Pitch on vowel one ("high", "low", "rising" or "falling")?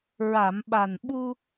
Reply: low